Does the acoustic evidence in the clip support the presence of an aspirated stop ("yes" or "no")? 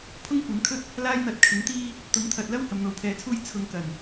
yes